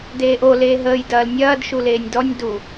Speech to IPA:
d eː ʔ o l eː ɦ əː j d ɐː l nʲ ɐː d ʃ u l eː nʲ d ɔ nʲ d u

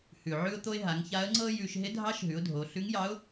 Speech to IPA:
h ʉ˩ ʕ ʉ˧ ʊ̯ t̪ o˧ ɪ̯ ɦ a˩˧ ŋ ç a˧˥ ə̯ ŋ͡ǀ ɤ˥ j ʉ˧ ʃ ɦ ɪ˧˥ dʱ ɑ˧˥ ʃ ɦ ʉ˩˧ ʊ̯ dʱ o˩˧ ɬ ʉ˧˥ ŋ j ɑ˧˥ ʊ̯

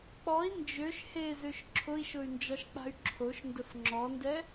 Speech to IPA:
k͡p ɔ i̯ n d͡ʒ ø ʃ h e z ø ʃ ǁʰ ʊ i̯ ʃ ʊ y̯ n d͡ʒ ɒ ʃ k͡p a̤ y̯ ǁʰ o ʃ n d ə f ŋ͡ǁ ɔ n d ɛ

